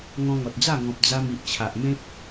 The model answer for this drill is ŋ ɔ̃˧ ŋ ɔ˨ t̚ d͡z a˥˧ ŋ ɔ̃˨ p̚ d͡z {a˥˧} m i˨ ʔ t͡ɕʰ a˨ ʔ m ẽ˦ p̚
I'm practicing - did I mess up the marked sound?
yes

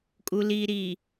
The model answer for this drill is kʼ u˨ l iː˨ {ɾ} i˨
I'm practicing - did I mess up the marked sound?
no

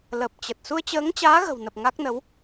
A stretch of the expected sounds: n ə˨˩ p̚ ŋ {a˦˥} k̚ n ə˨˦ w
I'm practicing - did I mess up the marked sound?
no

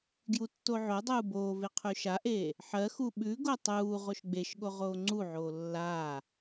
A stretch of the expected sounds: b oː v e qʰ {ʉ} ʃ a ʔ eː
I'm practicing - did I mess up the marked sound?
no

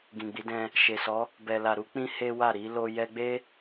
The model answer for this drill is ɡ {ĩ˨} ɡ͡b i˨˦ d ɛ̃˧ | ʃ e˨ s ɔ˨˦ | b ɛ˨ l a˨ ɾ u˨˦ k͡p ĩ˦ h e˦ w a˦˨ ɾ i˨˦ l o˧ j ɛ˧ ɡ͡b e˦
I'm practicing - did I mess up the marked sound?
no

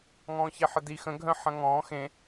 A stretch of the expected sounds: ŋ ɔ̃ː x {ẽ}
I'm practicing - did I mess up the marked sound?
no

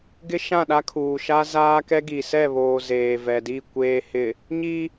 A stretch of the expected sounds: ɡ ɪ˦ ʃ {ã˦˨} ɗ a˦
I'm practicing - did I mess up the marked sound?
no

